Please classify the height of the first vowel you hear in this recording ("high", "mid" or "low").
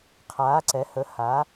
low